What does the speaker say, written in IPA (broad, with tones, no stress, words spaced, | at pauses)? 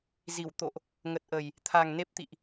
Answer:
zi˧˩w t̪o̰˧˨ʔ | ŋə˨˩t̚ʔə˨˩j | t̪ʰa˨˩ŋne˦˥p̚t̪ḭ˧˨ʔ